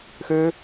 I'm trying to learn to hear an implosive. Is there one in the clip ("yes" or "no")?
no